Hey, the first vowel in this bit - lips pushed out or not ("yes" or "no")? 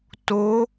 yes